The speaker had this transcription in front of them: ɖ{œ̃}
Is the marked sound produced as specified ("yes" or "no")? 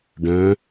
yes